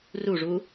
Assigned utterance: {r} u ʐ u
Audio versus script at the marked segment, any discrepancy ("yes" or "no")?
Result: no